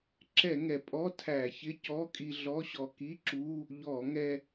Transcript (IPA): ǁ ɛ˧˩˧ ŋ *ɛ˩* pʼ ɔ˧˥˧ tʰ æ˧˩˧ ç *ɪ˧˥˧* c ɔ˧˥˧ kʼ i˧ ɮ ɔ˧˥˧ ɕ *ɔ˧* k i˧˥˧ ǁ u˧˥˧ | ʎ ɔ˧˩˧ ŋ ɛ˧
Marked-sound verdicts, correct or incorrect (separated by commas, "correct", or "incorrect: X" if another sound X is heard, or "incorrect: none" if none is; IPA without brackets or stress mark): correct, correct, correct